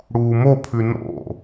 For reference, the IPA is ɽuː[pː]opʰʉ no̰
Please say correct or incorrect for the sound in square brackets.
incorrect